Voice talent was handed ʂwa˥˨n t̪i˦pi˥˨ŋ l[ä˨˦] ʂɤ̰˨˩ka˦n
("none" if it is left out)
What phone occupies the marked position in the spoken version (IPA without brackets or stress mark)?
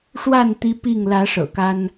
ä˨˦